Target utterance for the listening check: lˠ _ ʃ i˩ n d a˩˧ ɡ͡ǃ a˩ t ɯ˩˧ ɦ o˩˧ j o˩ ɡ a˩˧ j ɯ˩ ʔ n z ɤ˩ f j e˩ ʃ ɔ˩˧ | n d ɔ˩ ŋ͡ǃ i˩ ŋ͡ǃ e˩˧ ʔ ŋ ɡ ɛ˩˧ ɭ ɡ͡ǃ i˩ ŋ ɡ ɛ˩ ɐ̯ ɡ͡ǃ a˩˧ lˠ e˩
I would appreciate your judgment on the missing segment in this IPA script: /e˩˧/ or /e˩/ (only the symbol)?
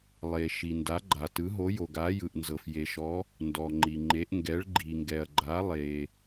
e˩